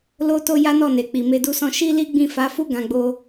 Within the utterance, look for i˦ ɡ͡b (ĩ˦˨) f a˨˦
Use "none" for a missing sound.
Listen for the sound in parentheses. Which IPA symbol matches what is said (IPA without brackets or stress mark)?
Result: ĩ˦˨